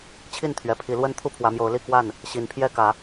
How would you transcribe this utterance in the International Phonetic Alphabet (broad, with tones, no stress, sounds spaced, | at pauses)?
t͡ɕʰ i˥˨ n t̪ʰ ɥ ɛ˨˩ pʰ i˨˦ l w ə˦ n t̪ʰ u˥˨ pʰ w ä˨˦ m j o˨˦ ʊ̯ l i˥˨ k w a˥˨ n | ɕ i˨˦ n pʰ j ɛ˥˨ k ä˨˦